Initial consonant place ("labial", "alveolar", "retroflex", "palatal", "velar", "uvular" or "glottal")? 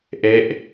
glottal